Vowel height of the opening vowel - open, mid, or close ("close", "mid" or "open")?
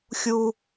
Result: close